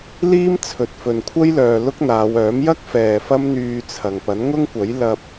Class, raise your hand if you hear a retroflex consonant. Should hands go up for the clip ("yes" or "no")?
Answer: no